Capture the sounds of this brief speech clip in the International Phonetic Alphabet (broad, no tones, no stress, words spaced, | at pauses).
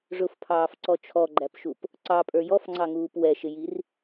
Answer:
ʐʊfpʰɑːfǀɔ t͡ʃʰɔɡ͡ǃæpʃup | ǀɑpʼə˞ jɔfŋ͡ǀɑŋuːp wɛʃɪjir